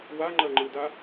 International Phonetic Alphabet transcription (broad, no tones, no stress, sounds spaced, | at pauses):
w a ŋ͡ǃ ɜ ŋ͡ǃ ɯ d a